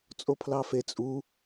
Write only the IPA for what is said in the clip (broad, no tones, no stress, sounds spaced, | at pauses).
t͡sʼ o pʰ l ɑ f e t͡sʼ u